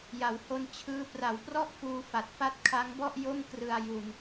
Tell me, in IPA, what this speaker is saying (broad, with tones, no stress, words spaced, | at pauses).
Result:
ja˩˦who˧nt͡ɕʰɯː˦˥ pra˩˦wprɔ˥˩ʔ fuː˧fa˨˩t̚ fa˦˥t̚kʰa˦˥ŋbɔ˥˩ʔ jo˥˩mkrɯ˧a̯ ju˧n